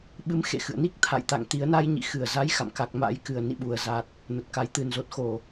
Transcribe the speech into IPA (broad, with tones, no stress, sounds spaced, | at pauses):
ɓ ɨ˨˦ m x ḛ˧˨ x ɨ̰˧˨ ə̯ n i˦˥ k̚ t̪ʰ a̰˧˨ j t̪ a̰˧˨ ŋ t̪ i˨˦ ə̯ n a˧ j ɲ ḭ˧˨ x ɨ˧˩ ə̯ z a˨˦ j x a̰˧˨ m k a˨˩ k̚ m a̰˧˥ j k ɨ˨˩ ə̯ n ḭ˧˨ ɓ u˨˩ ə̯ z a˨˩ t̚ | n ə˨˩ t̚ k a˨˩ j t̪ ɨ˨˩ n z o˨˩ t̚ x o˧˩˨